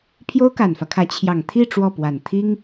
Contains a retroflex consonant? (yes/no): yes